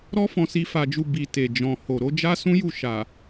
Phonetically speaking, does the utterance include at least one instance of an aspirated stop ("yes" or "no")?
no